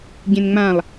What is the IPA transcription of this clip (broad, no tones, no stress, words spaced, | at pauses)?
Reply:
ɟẽnŋ͡mãlˠ